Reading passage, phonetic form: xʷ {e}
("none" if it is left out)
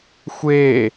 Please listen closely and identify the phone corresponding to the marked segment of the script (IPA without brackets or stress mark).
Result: e